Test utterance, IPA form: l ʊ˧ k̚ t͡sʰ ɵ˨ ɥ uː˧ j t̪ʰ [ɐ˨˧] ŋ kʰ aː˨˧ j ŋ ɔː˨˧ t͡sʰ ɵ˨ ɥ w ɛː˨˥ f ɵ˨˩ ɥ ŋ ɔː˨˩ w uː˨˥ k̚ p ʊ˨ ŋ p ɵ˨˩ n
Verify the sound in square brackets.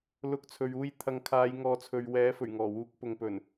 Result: correct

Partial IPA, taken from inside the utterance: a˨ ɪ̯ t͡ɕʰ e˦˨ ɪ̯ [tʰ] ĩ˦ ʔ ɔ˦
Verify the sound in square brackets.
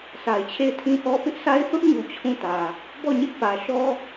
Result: correct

